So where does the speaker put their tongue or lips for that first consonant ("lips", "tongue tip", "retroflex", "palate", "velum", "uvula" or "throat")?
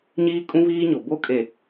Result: palate